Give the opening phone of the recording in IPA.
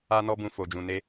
a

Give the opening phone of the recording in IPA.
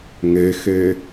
ŋ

